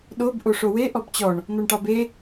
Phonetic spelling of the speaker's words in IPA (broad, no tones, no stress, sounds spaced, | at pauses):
ɗ o b ʔ o ʂ o w e ʔ ɔ b t͡ɕ ɔ ɳ | n̪ ɔ ɳ ʈ ɑ b e